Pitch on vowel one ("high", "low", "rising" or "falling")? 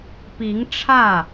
rising